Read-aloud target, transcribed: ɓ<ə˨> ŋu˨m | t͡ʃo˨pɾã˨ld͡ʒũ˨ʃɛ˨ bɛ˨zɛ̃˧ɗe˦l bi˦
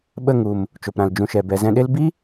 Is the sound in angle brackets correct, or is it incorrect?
incorrect: ə˦˨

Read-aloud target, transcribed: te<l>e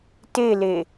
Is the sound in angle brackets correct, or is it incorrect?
correct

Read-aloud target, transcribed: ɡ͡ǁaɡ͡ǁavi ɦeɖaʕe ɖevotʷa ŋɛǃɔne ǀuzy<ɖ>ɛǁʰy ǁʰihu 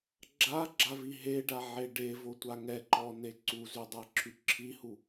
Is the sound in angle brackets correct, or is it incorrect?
incorrect: dˤ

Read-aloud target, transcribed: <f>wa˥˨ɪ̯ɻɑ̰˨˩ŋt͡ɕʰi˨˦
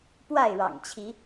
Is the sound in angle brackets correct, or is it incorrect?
incorrect: p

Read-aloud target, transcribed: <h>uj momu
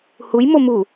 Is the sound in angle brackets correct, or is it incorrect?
correct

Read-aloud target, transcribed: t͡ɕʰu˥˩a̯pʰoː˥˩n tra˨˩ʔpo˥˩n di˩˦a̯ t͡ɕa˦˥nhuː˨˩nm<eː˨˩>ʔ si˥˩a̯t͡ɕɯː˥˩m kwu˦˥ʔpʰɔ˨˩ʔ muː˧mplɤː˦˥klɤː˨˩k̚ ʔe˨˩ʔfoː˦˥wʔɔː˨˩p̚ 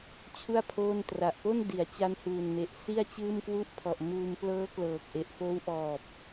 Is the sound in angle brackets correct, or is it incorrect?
incorrect: e˨˩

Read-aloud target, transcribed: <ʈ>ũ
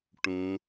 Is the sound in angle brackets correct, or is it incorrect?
correct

